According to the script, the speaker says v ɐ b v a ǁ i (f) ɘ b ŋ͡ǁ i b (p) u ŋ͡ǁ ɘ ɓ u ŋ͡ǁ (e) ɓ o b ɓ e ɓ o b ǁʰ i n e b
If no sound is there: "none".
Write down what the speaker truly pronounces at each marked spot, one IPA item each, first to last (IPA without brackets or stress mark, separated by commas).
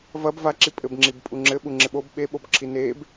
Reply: pʼ, pʼ, e